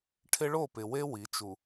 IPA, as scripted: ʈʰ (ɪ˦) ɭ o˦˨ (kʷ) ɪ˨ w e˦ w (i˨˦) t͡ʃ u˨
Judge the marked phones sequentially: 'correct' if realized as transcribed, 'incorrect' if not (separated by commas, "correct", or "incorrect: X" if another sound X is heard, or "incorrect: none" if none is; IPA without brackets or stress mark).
correct, incorrect: p, correct